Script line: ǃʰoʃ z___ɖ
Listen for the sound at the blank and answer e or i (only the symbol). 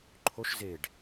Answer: e